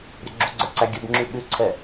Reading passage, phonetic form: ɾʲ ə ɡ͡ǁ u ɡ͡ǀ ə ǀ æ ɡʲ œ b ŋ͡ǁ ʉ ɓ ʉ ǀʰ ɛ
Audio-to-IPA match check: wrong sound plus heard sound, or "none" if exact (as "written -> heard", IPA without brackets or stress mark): none